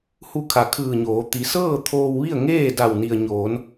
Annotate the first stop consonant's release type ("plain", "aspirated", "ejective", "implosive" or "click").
aspirated